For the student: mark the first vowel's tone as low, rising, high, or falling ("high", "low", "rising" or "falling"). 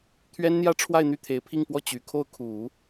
high